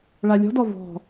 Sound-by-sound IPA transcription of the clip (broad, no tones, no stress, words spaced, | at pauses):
ɭalʲɔ̤dɔ vɔ̤